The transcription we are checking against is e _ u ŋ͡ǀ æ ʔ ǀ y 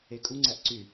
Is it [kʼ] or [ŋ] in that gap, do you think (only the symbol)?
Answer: kʼ